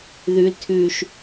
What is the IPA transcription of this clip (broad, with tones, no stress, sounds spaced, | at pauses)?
ð ʉ˦ l tʰ ʉ˦ ʃ